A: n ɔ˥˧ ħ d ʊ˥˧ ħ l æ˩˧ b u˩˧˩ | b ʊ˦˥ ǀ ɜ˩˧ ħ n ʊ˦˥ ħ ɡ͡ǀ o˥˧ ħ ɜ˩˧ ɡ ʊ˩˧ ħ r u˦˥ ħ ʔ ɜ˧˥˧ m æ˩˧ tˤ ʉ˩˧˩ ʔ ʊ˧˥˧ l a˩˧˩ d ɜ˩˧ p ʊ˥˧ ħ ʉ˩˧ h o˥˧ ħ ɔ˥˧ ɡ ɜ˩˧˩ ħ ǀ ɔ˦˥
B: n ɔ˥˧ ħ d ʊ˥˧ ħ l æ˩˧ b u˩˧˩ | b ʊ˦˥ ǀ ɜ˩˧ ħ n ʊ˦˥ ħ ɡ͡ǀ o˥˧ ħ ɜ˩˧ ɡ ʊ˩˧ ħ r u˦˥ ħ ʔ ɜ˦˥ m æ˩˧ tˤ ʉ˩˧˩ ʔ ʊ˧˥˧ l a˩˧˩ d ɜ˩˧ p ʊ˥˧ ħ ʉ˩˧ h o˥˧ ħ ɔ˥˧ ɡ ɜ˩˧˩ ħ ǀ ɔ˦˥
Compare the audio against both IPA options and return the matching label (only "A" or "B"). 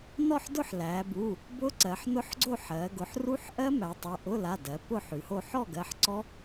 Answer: B